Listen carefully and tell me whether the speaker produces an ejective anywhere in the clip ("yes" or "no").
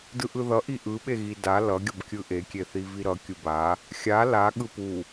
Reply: no